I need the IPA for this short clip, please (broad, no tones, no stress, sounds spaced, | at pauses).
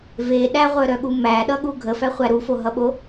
v e ɗ æ ʁʷ œ ɾ œ ɠ u m æ ɗ ʌ ɠ u ɡʱ ə f æ χʷ æ ɾ u f o ɦ ʌ ɓ o